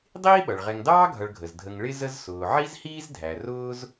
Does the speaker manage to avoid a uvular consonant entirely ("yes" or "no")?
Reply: no